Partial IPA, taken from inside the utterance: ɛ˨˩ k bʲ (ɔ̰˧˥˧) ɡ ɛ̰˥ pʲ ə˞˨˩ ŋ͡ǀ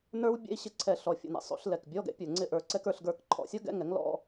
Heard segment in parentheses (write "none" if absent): ɔ˧˥˧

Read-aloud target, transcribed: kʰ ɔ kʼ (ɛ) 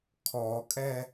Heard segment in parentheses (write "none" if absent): ɛ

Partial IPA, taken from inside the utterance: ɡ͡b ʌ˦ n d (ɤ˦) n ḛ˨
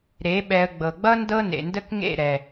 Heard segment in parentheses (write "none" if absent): ɤ˦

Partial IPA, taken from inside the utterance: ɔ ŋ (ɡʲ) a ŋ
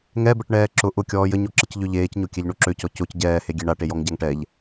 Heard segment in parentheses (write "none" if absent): ɟ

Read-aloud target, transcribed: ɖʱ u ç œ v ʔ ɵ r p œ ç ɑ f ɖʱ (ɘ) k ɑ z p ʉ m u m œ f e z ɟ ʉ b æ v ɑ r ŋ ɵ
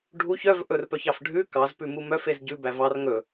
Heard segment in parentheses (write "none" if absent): ʉ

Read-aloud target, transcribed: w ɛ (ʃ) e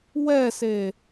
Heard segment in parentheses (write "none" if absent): s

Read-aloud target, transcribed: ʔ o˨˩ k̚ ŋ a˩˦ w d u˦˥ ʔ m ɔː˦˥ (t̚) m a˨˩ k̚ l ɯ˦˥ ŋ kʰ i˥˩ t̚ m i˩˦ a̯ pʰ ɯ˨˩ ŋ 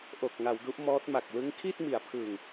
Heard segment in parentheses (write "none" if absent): t̚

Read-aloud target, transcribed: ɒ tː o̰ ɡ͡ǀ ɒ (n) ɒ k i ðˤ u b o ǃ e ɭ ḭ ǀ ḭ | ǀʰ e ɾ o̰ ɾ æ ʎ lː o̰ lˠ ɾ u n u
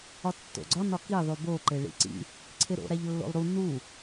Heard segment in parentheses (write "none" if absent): n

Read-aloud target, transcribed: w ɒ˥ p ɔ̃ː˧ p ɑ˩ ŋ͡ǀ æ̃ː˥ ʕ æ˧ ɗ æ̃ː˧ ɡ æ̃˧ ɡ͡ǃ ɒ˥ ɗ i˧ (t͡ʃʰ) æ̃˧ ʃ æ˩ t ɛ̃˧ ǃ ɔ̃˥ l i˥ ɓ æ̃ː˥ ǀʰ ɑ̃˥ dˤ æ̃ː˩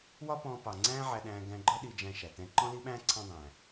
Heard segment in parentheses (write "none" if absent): d͡ʒ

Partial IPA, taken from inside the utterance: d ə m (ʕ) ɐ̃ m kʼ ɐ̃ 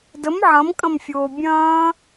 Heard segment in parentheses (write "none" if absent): ʕ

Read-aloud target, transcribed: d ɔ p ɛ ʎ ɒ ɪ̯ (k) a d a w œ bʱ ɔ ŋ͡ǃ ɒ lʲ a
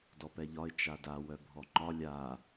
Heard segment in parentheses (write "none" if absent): t͡ʃ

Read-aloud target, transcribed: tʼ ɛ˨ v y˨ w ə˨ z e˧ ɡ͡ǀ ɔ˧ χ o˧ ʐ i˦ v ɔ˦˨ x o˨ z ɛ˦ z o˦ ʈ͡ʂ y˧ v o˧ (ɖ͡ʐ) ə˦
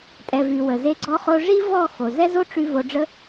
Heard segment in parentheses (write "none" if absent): ɖ͡ʐ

